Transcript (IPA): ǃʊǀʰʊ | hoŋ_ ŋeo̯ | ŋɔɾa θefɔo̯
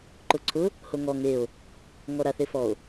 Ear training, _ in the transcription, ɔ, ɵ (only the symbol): ɔ